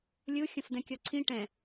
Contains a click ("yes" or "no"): yes